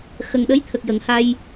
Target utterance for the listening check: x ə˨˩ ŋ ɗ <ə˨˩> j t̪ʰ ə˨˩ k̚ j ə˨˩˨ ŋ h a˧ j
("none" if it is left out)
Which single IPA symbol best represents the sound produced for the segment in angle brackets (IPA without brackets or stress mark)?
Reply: ə˧˥